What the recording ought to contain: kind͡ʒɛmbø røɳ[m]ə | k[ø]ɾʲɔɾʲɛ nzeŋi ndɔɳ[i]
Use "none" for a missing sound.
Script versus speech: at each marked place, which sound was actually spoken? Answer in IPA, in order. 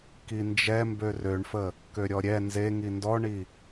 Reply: f, ø, i

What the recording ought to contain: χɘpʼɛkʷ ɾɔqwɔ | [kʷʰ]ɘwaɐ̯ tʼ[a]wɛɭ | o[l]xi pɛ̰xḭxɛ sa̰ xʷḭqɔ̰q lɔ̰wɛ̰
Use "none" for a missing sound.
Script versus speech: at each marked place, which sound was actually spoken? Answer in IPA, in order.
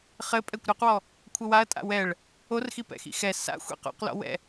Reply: kʷʰ, a̰, r

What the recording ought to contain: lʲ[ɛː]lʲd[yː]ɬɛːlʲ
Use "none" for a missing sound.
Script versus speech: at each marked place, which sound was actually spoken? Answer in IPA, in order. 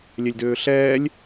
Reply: ɛ, øː

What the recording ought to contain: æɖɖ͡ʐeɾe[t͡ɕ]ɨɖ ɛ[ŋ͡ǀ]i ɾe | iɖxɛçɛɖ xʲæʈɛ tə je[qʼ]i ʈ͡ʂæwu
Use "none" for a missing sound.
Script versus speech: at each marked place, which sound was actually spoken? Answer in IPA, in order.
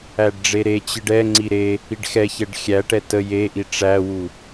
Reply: t͡ɕ, ŋ͡ǀ, ʔ

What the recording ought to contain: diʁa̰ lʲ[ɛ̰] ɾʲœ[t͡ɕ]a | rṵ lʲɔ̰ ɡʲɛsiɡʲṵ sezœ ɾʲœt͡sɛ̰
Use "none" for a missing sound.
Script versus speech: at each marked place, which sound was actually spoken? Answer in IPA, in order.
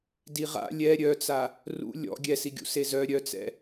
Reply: ɛ, t͡s

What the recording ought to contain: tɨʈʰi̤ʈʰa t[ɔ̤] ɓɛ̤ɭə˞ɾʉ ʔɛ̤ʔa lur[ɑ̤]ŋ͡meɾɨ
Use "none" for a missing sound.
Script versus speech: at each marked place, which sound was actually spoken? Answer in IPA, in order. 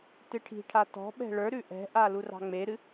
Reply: ɔ̤, ɑ̤

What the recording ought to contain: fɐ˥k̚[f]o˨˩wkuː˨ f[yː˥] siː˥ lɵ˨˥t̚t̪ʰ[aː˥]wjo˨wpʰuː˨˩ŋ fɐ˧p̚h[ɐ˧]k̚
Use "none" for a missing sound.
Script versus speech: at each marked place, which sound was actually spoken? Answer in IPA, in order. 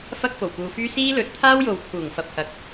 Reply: f, yː˥, aː˥, ɐ˨˥

